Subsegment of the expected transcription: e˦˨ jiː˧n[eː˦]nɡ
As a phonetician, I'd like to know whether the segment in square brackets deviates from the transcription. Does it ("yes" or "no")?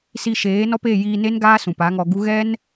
yes